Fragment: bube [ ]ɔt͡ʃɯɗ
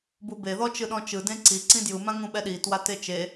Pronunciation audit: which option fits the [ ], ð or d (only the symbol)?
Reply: ð